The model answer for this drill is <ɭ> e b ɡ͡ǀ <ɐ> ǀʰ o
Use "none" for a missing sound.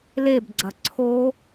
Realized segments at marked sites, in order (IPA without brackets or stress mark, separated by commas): l, ɐ